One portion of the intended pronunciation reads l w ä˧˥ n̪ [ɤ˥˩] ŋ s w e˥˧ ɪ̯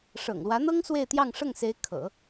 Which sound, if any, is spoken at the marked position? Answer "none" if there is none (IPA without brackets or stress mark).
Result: ɤ˥